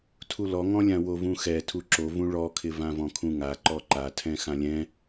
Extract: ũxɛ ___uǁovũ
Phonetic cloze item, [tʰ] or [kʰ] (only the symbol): tʰ